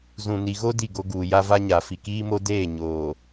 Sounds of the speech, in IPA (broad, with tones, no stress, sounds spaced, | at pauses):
z ũ˨ n i˨ ɣ o˦ d i˦˨ ɡ o˦ ɡ uː˨ j a˦ v a˦ ɲ a˨ f i˨ k iː˦ m o˦ d eː˦˨ ɲ oː˨